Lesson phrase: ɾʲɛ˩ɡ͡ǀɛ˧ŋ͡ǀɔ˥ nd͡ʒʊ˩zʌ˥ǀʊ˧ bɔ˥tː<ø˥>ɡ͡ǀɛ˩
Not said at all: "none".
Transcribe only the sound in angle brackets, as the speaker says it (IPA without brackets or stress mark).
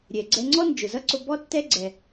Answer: ɛ˥